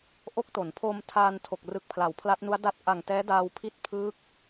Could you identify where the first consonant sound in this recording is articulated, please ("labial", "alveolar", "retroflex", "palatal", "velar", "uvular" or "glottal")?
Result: glottal